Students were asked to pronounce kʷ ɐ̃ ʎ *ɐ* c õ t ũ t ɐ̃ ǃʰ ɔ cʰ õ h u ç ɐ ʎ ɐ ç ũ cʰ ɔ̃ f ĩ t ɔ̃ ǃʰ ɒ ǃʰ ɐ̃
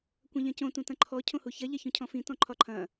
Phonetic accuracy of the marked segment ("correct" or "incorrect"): incorrect